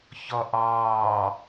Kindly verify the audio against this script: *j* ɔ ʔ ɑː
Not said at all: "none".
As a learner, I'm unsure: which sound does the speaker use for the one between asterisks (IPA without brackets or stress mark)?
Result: ç